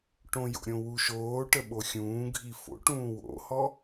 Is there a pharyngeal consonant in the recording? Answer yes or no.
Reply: no